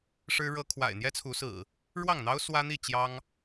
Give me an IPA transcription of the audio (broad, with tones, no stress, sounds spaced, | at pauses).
ʂ ɻ̩˦ ɻ ɤ˦ kʰ w a̰˨˩ ɪ̯ n̪ j ɛ˦ t͡sʰ u˨˦ s ɹ̩˨˩ | ɻ w ɑ˥˨ ŋ n̪ ɑ˦ ʊ̯ s w ä˦ n̪ i˥˨ t͡ɕ j ɑ˦ ŋ